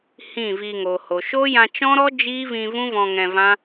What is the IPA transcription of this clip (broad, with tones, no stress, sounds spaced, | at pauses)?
h ĩ˦˨ v iː˧ ŋ o˨ h o˨ ʃ o˦ j ã˧ t͡ʃ ɔ̃˦ ɾ ɔ˦ d͡ʒ iː˦ v ĩ˧ v ũ˦ v ɔ̃˧ ŋ ɛ̃˧ v ã˦